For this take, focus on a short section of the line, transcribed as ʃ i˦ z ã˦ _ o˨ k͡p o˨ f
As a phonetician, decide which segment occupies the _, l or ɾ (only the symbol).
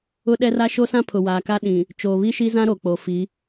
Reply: ɾ